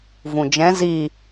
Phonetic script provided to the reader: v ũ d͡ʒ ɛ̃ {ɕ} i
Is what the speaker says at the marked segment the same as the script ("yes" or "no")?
no